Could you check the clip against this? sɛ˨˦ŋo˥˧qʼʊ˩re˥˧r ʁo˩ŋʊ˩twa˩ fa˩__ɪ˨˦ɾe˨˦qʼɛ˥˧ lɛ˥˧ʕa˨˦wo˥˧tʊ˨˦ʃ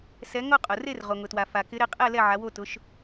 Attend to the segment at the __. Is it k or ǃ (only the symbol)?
k